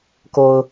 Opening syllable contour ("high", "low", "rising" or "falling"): low